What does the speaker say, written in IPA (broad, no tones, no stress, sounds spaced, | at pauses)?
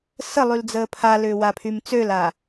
s ə lˠ y l d͡z əː pʰ a l ʏː w a pʰ y m t͡s ø l a